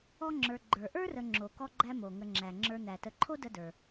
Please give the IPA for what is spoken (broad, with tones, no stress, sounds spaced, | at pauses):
ɔ˦ ŋ͡ǁ ə˞˨ ɡ͡ǃ ə˞˩ ʔ ə˞˥ r ə˨ ŋ͡ǁ o˩ k ɔ˦ ɡ͡ǃ æ˦ m o˩ ŋ ə˨ ŋ͡ǁ æ˩ ŋ͡ǁ ə˞˨ n̪ æ˩ t ə˨ ǃʰ o˥ d ə˦ d ə˞˩